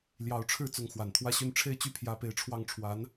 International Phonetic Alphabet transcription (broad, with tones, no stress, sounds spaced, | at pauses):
l j ɑ˧˥ ʊ̯ ʈ͡ʂʰ ɻ̩˥˩ t͡s ʊ˧˥ ŋ x w a˨˩ n t̪ʰ w ä˥˧ ɕ y˥˧ n ʈ͡ʂʰ e˥˧ ɪ̯ t͡ɕ y˥˩ pʰ j ä˥ p e˥˧ ɪ̯ ʈ͡ʂʰ w ɑ˥˩ ŋ ʈ͡ʂʰ w a˧˥ n